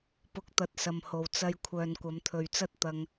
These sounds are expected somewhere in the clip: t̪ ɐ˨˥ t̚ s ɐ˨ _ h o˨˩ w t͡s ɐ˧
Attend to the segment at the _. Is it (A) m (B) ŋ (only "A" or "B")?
A